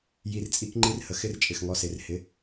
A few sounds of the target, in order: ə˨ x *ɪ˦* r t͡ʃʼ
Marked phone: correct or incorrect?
correct